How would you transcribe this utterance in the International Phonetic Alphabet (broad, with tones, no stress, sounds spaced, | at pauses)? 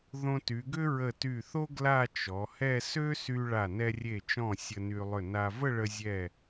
ð õ˧ t y˩˧ ɡ ʏ˥ ɹ ə˧˩ t y˧˩ θ o˥ ɡ l a˥˧ t͡ʃ ɔ˩˧ h ɛ˥˧ s ø˥ s y˧ ɭ a˧˩ n ɛ˧ rʲ e˧˩ t͡ʃ ɔ̃˧˩ sʲ ə˧ n y˧ lˠ ʏ˧˩ n a˧ v ə˥˧ ɭ ə˧ zʲ ɛ˧˩